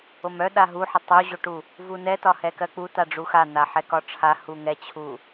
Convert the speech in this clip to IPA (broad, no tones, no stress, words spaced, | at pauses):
omœ ɗaɦuħɪ tˤuʑoʈu | vunɛ tɒhɛkɜk͡pu taɖ͡ʐuxa n̪aħɛkɒʈ͡ʂʰa huŋɛt͡ɕʰu